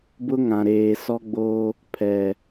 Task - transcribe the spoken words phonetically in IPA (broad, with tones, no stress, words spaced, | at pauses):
bʊ˦ŋã˨ ɾeː˨sɔ˦ɡ͡boː˦ | pʰɛ˨